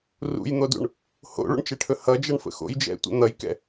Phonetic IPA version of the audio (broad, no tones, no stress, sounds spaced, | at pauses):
r ṵ j n̪ o d ṵ ɳ | h o̰ ɭ ṵ ɳ t͡ʃ ɛ ʈʰ ɵ h ʌ d͡ʒ ʌ ɳ f ə̰ x o̰ j d͡ʒ ɛ̰ tʷ ə̰ n̪ ʌ j k ɛ̰